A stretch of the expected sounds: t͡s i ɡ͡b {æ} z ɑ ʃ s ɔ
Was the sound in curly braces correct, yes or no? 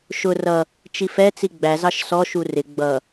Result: yes